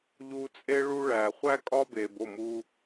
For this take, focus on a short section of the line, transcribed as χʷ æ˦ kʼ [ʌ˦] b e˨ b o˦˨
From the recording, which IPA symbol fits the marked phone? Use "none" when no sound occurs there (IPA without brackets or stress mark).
ɒ˦